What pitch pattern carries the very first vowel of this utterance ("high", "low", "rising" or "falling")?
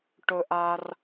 high